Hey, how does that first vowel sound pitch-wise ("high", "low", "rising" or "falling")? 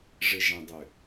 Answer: low